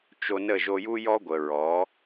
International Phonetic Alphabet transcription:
t͡ʃ o˧ n ə˦˨ ʒ o˧ j u˦ j ɔ˦ ɡʷ ə˨ ɹ ɔ˨˦

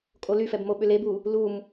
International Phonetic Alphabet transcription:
kʼ o l y f ɛ b m o ɓ ʏ l e b u | l u m

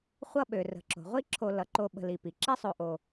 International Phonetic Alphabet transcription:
χʷ ʌ˦ ɓ ø˩ r ə̤˩ ǁ o̤˩ ʁʷ i˦ ǁʰ o˨ l ʌ˩ ǃ o˨ ɓ ə̤˨ l i˩ p i˩ ǁ ɛ˦ sˤ o˨ ʔ o˨

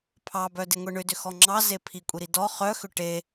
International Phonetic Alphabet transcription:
pʰ ɑ b œ d e ŋʷ e ɳ ʏ d ʏ x ɔ ŋ͡ǁ ɑ z e pʰ i kʷʼ i ɾ i d ɔ χ œ x ʏ ʈ e

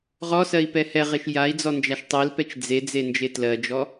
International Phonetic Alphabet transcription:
ʁ ɔ s ɜ i̯ p ɛ h ɛ ʁ e ʃ j a i̯ d͡z ɔ n d͡ʒ a ʃ tˤ e l p ɛ t͡ʃ d͡z e d͡z e n d͡ʒ e t l ɜ d͡ʒ ɔ

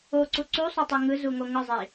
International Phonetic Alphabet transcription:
o ǀ u ǀ u sˤ o tˤ e ŋ ɯ z u ŋ o ŋ ɯ zˤ i

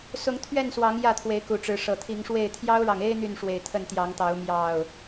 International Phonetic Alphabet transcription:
s ʊ˨˦ ŋ t̪ʰ ɥ ɛ˥˨ n s w ɑ˨˦ ŋ j ä˥˨ t̪ʰ w e˨˦ ɪ̯ k u˨˩ ʈ͡ʂ ɻ̩˨˦ ʂ ɤ˨˩ t̪ʰ i˨˦ ŋ ʂ w e˥˨ ɪ̯ t̪ʰ j ɑ˦ ʊ̯ ɻ ɑ˨ ŋ e˦ ɪ̯ n̪ y˥˨ n ʂ w e˨˩ ɪ̯ t̪ʰ ə˥˨ n t̪ j ɑ˨˦ ŋ t̪ ɑ˨˦ ʊ̯ m j ɑ˥˨ ʊ̯

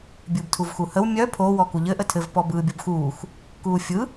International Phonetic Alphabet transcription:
bʲ ɯː b tʰ u v x u h ə w mʲ œ pʰ o w ɔ k u ʎ ɘ ʔ ə tʰ ɘ v p ɔ b ɯː bʲ o b x uː x | k uː fʲ ɯ

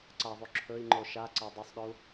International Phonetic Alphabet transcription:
ǀ a ðˤ u ǁʰ ɵ i̯ ŋ͡ǃ o ʃ a ǀ a dˤ ɵ sˤ ɗ ɵ u̯

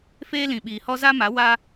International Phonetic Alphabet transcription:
f eː˦ l ĩ˨ ɓ iː˨ h ɔ˦ z a˦ m a˨˦ w a˦

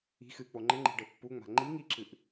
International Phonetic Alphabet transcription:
i̤ x ɨ k͡p o ŋ͡ǃ ɘ ŋ͡ǃ i̤ ɖ ɘ pː u ŋ͡m a̤ ŋ͡ǃ i ŋ i ǁ ɨ ʔ

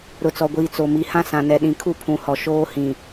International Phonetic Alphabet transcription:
ɾ ʊ˨ t͡s ɔ˨ ɡʷ iː˨ t͡s o˨ m i˨˦ h ã˦ s ã˨ n ɛ˨ ɗ ĩ˨ kʰ u˦ pʰ ũ˨ h ɔ˨ ʃ oː˦ h ĩ˨

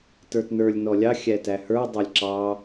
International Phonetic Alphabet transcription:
t ə˞ t n ə˞ lʲ n ɔ lʲ ɑ xʲ æ t æ h ə˞ dˤ ɑ lʲ ǁ ɑ

